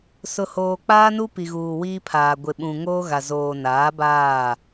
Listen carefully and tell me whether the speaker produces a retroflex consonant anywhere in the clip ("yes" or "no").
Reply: no